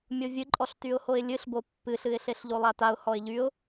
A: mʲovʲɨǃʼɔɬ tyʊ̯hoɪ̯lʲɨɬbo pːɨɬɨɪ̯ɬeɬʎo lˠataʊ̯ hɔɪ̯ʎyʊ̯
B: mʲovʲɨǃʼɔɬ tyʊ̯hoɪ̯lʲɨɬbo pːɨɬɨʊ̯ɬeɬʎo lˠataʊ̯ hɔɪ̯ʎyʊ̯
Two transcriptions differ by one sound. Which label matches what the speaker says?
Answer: A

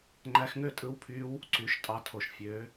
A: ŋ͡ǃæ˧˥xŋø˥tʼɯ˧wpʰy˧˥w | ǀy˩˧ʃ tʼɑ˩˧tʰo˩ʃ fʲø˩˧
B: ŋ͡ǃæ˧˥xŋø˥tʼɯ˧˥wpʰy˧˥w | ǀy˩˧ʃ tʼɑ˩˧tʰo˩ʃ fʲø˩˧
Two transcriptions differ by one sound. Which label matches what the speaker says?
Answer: B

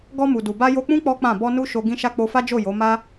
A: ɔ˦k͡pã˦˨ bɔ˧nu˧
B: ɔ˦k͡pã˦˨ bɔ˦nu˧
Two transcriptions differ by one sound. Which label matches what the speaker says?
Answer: A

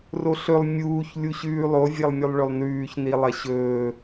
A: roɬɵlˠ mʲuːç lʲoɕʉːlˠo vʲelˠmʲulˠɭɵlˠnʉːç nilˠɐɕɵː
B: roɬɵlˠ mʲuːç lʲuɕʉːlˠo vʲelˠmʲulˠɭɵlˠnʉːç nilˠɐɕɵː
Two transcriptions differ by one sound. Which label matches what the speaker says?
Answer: B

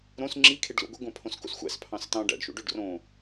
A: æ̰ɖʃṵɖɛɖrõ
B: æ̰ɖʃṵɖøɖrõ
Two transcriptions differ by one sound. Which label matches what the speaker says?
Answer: B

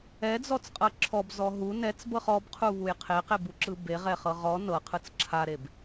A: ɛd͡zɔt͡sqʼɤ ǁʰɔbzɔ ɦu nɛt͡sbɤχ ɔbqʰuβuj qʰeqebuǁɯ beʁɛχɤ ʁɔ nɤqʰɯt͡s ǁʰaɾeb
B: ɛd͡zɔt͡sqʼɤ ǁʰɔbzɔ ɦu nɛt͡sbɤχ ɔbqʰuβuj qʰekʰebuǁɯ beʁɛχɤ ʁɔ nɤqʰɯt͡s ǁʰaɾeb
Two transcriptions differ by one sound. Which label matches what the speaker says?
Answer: A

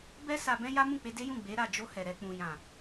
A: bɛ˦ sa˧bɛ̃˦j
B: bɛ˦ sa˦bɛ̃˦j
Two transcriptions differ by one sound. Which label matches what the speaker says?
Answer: A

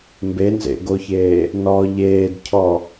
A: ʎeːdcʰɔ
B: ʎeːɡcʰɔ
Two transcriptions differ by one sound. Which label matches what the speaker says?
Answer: A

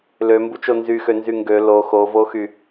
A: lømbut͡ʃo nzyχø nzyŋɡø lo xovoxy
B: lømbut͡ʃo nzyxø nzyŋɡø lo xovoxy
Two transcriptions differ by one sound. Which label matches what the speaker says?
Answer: B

